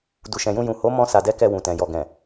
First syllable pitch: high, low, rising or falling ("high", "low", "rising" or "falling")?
low